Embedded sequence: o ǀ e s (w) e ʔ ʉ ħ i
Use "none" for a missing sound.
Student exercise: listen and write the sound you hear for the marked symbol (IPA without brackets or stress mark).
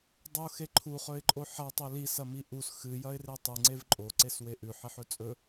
w